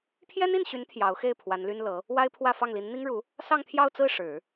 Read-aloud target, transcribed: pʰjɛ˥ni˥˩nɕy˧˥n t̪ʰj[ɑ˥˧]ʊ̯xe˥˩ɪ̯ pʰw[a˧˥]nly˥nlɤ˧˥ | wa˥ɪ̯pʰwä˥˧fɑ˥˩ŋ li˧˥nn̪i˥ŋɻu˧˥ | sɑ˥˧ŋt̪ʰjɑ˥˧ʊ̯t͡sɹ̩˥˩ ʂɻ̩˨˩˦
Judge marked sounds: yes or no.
no, yes

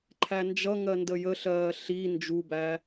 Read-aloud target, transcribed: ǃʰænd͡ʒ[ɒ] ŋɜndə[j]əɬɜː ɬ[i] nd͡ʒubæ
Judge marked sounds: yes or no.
no, yes, yes

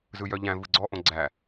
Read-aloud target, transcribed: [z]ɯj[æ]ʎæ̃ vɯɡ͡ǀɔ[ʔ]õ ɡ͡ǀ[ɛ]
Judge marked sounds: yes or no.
yes, no, yes, no

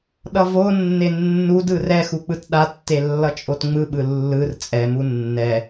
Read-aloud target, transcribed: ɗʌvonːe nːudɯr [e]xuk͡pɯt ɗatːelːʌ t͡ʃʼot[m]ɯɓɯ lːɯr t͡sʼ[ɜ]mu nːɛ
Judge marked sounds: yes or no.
no, no, no

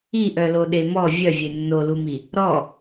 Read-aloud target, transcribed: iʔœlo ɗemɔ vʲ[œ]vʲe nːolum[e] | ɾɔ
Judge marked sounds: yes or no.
yes, no

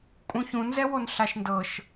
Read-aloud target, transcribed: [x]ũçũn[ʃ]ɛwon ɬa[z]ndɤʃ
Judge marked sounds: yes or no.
no, no, no

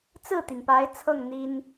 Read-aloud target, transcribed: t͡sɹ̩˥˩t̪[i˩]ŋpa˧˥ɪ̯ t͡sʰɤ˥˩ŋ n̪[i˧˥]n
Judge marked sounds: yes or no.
yes, no

